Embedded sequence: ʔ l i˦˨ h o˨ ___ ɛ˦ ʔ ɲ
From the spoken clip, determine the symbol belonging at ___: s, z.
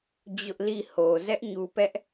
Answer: z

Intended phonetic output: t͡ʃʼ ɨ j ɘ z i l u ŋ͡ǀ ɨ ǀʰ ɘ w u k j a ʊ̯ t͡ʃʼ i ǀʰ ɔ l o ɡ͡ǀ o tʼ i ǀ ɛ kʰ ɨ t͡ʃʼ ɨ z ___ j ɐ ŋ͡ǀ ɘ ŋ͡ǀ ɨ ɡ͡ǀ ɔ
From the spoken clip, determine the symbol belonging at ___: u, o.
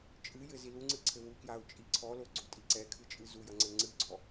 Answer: u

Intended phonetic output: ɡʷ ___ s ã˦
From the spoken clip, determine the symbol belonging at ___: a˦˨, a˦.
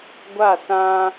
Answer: a˦˨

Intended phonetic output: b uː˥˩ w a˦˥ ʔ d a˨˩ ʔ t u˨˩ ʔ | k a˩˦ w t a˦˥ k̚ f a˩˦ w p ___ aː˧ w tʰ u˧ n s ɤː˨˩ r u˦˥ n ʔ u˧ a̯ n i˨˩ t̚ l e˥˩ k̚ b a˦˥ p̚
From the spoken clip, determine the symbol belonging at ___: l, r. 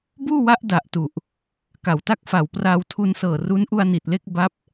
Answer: r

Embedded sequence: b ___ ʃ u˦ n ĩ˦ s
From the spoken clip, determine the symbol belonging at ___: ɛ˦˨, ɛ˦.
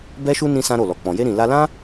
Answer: ɛ˦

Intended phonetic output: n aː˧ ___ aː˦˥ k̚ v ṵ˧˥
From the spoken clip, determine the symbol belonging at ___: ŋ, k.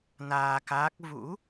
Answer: k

